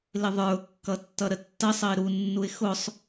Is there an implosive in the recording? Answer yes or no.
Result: no